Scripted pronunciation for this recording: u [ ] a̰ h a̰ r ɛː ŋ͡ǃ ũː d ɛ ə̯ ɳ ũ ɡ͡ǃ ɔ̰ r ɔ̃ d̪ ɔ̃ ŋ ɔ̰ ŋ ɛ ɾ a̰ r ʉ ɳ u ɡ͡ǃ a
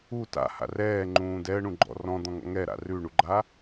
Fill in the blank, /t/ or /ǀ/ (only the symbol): t